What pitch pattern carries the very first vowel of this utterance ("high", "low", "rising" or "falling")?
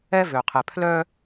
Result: high